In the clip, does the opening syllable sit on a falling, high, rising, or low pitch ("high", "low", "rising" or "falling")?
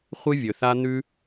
high